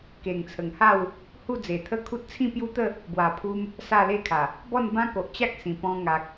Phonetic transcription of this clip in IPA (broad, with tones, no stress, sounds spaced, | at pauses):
k e˨˩ ŋ t͡sʰ ə˨˩ ŋ h a˥˧ w | h u˥˧ d͡z e˨˩ t̪ʰ ə˦ kʰ u˦ t̚ t͡sʰ ĩ˥˧ p j u˦ t̪ ə˥˧ | b w a˨˩ pʰ u˧ m | s a˥˧ l e˥˧ kʰ a˨˩ | b ɔ˥˧ n b ã˦ k o˨ ʔ t͡ɕ a˦ k̚ s ĩ˨˩ p ɔ̃˧ ŋ a˨ k̚